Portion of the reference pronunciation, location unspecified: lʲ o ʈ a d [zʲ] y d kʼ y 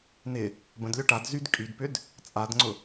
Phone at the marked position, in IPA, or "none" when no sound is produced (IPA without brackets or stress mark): z